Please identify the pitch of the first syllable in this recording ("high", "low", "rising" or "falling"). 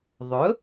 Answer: rising